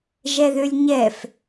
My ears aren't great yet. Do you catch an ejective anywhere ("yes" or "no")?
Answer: no